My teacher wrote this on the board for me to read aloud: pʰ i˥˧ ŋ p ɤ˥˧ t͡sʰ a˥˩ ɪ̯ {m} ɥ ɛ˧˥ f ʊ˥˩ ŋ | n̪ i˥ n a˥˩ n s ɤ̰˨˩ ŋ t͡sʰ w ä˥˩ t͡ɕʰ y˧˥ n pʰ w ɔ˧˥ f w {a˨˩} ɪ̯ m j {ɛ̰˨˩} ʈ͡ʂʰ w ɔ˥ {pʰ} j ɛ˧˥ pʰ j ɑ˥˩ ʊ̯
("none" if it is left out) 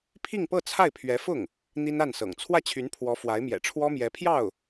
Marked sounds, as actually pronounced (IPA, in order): pʰ, a˧˥, ɛ̰˨˩, m

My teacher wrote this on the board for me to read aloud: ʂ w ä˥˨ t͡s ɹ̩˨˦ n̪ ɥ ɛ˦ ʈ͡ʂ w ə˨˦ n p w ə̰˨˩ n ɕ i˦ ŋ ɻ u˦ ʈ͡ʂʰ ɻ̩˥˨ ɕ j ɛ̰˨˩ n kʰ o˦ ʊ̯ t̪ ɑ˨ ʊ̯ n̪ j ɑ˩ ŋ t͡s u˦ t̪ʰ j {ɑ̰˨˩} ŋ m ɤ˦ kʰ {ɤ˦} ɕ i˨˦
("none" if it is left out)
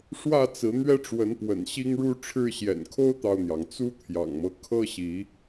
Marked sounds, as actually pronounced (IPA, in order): ɑ̰˨˩, ɤ˦

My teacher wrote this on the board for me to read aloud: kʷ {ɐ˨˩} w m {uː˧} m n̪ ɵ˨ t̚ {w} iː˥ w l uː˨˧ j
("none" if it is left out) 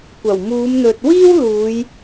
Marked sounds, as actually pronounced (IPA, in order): ɐ˨˩, uː˨˧, w

